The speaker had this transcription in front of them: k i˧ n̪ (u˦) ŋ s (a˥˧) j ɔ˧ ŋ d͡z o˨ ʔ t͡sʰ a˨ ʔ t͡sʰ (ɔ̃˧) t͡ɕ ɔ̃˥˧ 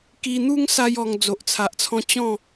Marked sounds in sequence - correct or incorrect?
correct, incorrect: a˦, correct

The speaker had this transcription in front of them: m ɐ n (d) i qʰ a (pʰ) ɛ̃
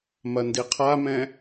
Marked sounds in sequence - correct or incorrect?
correct, incorrect: m

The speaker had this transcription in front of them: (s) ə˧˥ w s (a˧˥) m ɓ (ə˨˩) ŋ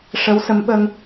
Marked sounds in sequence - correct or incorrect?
incorrect: ʂ, incorrect: ə˧˥, incorrect: ə˧

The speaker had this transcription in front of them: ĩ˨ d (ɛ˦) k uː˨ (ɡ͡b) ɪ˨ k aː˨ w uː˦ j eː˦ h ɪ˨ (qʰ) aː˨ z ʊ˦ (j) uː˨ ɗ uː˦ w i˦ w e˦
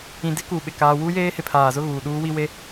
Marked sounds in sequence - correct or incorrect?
incorrect: ɪ˦, incorrect: ɓ, incorrect: pʰ, incorrect: ɣ

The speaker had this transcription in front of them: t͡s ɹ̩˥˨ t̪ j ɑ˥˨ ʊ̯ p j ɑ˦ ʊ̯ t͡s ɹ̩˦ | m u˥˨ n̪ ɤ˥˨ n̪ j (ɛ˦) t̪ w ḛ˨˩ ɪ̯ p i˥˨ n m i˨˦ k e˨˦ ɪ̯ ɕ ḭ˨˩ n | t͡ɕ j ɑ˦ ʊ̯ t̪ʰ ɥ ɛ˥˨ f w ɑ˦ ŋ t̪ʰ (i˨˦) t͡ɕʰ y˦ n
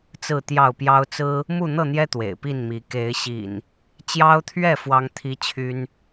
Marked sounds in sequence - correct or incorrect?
correct, incorrect: i˦

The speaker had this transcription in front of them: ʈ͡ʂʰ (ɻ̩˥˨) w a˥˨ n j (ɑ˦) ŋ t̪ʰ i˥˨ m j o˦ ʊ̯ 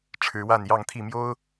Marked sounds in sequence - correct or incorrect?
incorrect: ɻ̩˨˦, incorrect: ɑ˥˨

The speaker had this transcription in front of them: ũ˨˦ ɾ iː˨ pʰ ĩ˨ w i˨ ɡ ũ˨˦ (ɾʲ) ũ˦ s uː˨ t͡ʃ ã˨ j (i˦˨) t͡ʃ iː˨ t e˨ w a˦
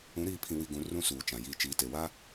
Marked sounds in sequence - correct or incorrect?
incorrect: r, correct

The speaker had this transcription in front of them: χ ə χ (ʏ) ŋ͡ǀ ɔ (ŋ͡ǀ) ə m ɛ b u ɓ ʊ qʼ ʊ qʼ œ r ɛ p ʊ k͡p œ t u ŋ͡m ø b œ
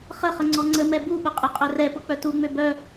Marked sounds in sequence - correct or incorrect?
incorrect: ə, correct

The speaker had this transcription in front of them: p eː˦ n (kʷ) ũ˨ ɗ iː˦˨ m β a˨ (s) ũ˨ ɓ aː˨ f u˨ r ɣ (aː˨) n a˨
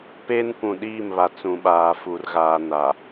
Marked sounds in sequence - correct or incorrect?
correct, incorrect: t͡s, correct

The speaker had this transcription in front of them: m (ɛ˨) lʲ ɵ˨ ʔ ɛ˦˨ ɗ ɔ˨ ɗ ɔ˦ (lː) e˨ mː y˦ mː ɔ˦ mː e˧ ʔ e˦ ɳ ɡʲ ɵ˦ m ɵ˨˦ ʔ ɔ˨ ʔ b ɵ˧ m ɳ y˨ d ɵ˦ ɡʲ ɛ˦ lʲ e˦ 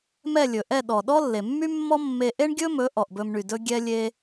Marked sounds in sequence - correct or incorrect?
incorrect: ɛ˦˨, correct

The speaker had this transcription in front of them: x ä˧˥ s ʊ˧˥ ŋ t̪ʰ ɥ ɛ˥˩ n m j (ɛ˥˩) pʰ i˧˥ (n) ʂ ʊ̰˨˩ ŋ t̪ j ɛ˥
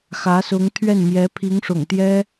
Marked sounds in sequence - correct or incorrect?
incorrect: ɛ˧˥, incorrect: ŋ

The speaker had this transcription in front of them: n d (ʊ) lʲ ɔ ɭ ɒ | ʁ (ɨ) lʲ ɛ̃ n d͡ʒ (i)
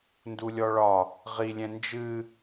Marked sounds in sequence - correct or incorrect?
incorrect: u, incorrect: i, incorrect: ɨ

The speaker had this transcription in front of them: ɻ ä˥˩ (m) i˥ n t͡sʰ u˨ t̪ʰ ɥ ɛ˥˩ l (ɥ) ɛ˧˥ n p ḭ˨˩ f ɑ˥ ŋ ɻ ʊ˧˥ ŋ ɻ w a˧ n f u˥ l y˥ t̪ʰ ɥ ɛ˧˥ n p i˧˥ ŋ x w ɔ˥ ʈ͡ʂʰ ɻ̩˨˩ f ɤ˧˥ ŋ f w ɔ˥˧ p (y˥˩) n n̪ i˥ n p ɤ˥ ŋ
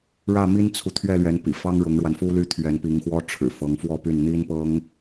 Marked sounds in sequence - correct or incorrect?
correct, correct, correct

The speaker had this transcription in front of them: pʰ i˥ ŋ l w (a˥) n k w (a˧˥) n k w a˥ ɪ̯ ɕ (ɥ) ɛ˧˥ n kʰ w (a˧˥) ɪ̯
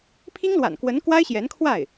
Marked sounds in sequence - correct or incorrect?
incorrect: a̰˨˩, incorrect: ə˧˥, incorrect: j, incorrect: a˥˩

